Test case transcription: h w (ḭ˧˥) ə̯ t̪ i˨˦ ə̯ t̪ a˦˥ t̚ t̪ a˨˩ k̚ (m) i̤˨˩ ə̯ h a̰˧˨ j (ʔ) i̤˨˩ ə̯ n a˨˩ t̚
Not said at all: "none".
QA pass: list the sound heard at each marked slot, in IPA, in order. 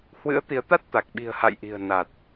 ɨ̰˧˥, ɓ, ʔ

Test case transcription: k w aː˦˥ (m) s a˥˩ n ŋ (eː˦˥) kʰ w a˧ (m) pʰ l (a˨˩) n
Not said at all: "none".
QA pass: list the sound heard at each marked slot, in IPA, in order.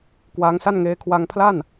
ŋ, eː˦˥, ŋ, a˥˩

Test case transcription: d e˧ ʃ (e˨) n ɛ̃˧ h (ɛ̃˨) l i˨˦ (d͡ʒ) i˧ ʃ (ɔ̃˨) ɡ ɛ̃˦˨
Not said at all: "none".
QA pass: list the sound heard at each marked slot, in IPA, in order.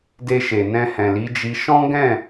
e˨, ɛ̃˨, d͡ʒ, ɔ̃˦

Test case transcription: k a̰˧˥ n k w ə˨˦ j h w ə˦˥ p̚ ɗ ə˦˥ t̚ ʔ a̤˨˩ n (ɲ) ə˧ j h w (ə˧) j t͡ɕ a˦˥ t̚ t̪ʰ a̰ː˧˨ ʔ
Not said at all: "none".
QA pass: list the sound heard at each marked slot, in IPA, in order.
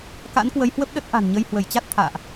ɲ, ə˧˩

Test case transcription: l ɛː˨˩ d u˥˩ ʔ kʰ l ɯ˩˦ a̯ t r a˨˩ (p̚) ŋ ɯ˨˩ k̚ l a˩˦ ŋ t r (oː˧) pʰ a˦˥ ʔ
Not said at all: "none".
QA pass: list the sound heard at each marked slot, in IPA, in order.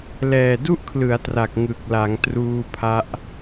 k̚, uː˧

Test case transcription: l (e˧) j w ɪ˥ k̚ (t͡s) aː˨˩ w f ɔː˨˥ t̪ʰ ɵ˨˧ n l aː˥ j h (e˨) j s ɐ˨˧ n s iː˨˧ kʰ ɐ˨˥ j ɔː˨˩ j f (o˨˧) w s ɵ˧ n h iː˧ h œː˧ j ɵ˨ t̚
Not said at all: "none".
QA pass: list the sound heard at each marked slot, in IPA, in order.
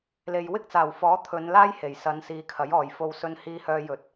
e˨, t͡s, e˨˩, o˧

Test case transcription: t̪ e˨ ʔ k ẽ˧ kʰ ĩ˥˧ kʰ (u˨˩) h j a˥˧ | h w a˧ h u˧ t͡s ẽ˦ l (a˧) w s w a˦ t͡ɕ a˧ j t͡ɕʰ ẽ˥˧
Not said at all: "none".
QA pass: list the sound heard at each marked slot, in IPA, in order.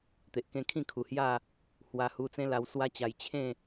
u˨˩, a˧

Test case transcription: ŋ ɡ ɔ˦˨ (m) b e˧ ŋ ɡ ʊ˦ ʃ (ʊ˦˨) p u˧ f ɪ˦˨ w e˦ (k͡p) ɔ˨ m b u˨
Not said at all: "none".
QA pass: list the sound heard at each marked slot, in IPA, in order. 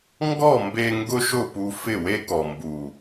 m, ʊ˦˨, k

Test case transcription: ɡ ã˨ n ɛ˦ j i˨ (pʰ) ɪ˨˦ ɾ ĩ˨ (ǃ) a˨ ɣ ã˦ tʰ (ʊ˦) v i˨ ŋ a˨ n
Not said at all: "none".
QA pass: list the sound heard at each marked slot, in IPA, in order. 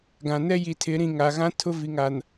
tʰ, ŋ, ʊ˦

